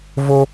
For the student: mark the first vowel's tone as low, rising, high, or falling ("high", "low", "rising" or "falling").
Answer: high